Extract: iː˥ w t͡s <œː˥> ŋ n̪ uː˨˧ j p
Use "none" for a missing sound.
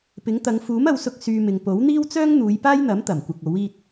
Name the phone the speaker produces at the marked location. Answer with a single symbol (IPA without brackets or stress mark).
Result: œː˥